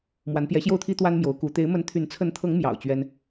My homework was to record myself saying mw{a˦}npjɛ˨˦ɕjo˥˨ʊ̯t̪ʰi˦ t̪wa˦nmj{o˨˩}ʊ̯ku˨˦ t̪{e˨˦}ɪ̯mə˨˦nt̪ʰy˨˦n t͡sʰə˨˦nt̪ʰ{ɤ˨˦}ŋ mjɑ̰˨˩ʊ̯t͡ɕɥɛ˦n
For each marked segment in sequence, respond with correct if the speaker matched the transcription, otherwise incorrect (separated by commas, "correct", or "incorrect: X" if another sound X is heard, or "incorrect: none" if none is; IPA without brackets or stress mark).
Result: incorrect: a˨˦, incorrect: o˨˦, correct, correct